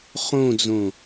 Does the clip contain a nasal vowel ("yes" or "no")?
yes